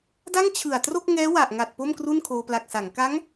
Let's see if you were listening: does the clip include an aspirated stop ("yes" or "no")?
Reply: yes